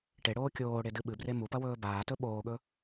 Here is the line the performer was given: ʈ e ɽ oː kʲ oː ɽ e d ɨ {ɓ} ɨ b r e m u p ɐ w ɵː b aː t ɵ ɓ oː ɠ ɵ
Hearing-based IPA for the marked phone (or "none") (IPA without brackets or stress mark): ɓ